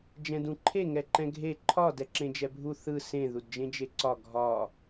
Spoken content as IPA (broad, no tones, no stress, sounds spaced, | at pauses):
d͡ʒ ɛ̃ d ũ ǃʰ e ŋ ɛ ǃ ɛ̃ ɡʱ e ǃʰ ɒ d ɛ ǁ ẽ d͡ʒ ɛ bʱ u θ ɯ s ẽ ð u d d͡ʒ ẽ d͡ʒ e ǀ ɒ ɡʱ ɒ